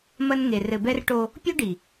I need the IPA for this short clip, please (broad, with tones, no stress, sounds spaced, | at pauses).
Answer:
m ɐ˦ n ŋ e˨ r ɘ˨ b ɛ˦ r ʈ o˦ | pʲ o˦ ɖ i˨